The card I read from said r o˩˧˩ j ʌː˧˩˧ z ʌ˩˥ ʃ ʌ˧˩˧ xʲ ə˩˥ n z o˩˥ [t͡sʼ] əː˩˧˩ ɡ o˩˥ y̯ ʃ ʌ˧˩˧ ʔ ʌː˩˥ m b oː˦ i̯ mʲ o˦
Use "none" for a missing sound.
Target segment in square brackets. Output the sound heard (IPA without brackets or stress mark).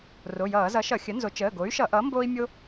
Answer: t͡ʃ